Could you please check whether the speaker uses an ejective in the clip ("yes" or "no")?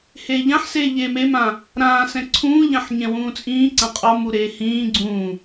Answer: yes